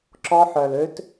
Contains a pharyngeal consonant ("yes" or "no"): yes